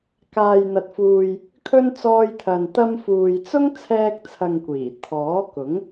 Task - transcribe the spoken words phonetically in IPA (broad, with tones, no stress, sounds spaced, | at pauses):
k aː˨ j n̪ ɐ˨ t̚ f uː˨ j | kʰ ɵ˧ n t͡s ɔː˧ j t̪ʰ ɐ˨ n t̪ ɐ˧ m f uː˨ j t͡s ʊ˥ ŋ t͡sʰ ɛː˧ k̚ t͡sʰ ɐ˨ ŋ kʷ iː˨˩ t̪ʰ ɔː˨˥ k ʊ˨˥ ŋ